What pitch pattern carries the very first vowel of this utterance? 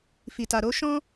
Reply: low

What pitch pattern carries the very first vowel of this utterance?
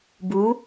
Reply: rising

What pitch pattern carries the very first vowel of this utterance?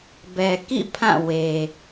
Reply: low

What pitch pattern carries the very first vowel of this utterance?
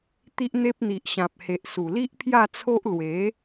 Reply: high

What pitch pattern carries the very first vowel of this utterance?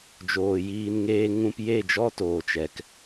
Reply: low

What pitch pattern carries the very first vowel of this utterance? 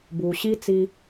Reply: low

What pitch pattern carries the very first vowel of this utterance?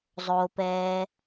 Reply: low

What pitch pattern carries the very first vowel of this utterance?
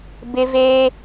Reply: high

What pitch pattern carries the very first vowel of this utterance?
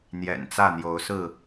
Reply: low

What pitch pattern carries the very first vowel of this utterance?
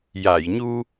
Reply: low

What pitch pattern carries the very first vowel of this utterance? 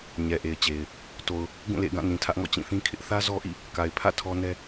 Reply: low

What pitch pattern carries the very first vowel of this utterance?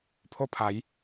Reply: high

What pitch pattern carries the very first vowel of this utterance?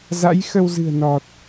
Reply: rising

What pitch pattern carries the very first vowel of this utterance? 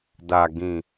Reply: low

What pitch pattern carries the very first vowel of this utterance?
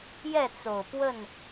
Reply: falling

